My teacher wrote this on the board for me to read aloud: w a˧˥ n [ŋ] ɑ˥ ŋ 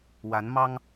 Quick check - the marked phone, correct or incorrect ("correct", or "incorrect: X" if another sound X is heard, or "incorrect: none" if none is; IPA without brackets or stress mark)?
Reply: incorrect: m